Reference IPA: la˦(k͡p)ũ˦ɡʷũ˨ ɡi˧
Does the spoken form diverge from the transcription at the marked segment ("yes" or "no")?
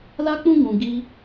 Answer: no